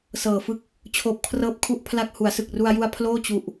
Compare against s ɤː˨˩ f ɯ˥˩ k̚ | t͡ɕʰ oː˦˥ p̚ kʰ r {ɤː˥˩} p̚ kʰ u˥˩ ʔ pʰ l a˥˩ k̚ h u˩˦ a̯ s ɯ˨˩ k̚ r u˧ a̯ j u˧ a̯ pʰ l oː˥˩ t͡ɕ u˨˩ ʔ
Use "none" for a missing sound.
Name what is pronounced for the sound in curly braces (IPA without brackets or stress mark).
ɤː˥˩